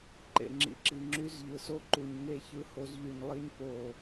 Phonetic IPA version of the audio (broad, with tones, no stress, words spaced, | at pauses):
ǃḛ˨ ŋ͡ǁḭ˨ǁi˨ŋ͡ǁy˦z ʎɯ˨so˦ǃu˨ɲ ŋe˦˨çɯ˦ho˦z ʎy˨ɲlˠi˦ɲ po˦˨